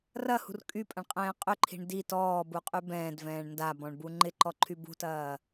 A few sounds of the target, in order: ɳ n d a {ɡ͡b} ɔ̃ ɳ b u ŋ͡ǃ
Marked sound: incorrect: b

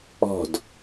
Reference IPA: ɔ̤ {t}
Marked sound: incorrect: d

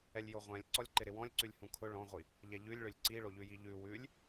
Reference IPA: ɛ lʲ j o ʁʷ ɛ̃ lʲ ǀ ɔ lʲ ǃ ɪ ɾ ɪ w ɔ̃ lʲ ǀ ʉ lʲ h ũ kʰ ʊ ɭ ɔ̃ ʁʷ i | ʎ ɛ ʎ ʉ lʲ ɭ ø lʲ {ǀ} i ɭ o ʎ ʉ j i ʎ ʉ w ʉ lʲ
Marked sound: correct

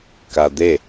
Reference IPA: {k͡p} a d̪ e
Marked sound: incorrect: k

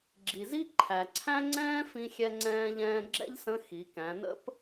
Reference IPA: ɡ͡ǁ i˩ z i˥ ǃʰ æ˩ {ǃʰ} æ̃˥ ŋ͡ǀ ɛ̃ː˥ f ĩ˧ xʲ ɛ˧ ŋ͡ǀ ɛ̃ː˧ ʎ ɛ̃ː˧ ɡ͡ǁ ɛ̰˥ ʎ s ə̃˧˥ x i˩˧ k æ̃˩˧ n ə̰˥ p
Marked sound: incorrect: ǀʰ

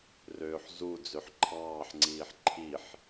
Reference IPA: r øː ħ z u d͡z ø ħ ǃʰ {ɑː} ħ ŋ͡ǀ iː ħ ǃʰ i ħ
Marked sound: correct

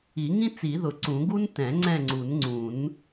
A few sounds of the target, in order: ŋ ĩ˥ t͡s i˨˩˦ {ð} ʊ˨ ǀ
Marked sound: correct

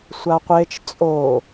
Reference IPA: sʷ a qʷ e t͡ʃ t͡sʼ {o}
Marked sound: correct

